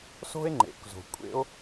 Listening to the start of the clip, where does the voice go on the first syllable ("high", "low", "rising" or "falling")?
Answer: high